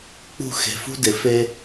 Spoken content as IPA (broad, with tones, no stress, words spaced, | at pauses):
k͡pṳ˦˨ xe̤˨fṳ˦ dɪ˨fe˦